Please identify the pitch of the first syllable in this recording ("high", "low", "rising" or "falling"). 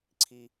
low